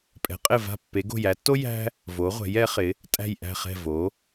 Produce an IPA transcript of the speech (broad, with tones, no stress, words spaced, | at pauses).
pʼɛ̤˩˧qʼɪ˧˩va̤˧˩ pːe˩˧ɡo̤˧˩jæ˩˧tːo˥ jæ̤˥ | vo˩˧ʁʷɛ̤˩˧j ɛ˩˧ χɪ˩˧ | tʼæ̤˧˩jʔæ̤˧˩χɛ̤˧˩ vo˩˧